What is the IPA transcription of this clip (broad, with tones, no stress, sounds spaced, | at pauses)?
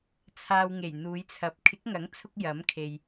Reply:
t͡sʰ aː˧ w ŋ e˨˩ j n̪ uː˨˧ j t͡sʰ ɐ˨˥ p̚ kʰ ɪ˨˥ k̚ ŋ ɐ˨˥ ŋ t͡sʰ ʊ˧ k̚ j ɐ˨˥ m kʰ e˨ j